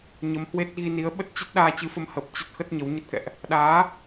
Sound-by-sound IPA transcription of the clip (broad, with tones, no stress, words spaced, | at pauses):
ɲə˨˦mhwe˦˥t̚ ɣi˧ni˨˦ə̯ ɓə˦˥t̚t͡ɕə˦˥t̚ɗaː˧ t͡ɕɨ˨˦fə˧mhəː˨˩p̚ t͡ɕə˦˥t̚ xə˦˥t̚ɲə˨˦wɲə˦˥t̚kɛ̰˧˨ʔ | ɗaː˨˦